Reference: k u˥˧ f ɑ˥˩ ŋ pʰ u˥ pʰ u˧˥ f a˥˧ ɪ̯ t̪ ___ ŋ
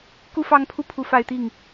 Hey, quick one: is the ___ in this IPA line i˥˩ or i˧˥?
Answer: i˥˩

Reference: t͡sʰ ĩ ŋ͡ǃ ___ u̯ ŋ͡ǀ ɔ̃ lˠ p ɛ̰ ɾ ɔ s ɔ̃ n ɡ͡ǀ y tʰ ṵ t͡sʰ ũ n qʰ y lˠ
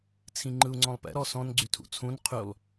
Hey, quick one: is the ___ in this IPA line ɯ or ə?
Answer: ɯ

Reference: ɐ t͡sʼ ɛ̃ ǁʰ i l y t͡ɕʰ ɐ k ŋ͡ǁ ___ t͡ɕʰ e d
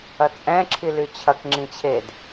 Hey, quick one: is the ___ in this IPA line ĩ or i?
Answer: ĩ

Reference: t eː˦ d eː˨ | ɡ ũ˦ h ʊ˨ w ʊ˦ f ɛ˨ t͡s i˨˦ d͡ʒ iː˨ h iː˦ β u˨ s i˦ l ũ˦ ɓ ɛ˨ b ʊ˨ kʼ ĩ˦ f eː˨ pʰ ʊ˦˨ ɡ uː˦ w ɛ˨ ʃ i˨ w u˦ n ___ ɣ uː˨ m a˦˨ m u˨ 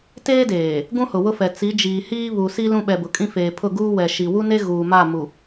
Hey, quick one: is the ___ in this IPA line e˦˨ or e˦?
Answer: e˦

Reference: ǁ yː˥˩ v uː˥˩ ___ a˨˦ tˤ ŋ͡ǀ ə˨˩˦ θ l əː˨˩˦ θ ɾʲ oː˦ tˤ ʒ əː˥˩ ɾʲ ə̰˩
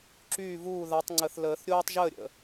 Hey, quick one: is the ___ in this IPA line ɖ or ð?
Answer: ð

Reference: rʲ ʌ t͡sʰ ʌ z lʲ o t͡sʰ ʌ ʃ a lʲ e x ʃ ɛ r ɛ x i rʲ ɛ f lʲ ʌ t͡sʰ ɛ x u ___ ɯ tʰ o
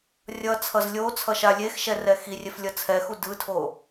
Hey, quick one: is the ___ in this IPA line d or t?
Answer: d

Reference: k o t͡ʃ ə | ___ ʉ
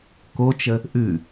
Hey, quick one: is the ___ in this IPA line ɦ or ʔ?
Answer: ʔ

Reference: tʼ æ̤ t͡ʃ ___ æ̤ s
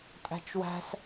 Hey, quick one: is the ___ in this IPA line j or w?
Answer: w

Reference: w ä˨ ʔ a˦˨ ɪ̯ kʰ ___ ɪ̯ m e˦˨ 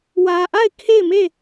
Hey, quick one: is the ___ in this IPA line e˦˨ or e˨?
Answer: e˦˨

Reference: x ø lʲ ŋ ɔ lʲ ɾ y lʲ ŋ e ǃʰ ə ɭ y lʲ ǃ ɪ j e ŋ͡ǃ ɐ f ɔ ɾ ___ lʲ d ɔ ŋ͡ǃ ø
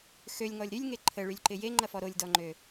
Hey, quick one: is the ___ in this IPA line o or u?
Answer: o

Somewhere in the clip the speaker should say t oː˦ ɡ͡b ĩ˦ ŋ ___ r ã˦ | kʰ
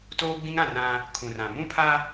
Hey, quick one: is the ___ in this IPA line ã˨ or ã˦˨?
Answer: ã˦˨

